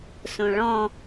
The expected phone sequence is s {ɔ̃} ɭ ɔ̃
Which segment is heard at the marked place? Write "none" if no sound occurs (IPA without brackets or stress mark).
õ